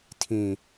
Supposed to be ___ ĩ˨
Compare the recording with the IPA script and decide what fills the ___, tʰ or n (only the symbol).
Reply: tʰ